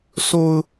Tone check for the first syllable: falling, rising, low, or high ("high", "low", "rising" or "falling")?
high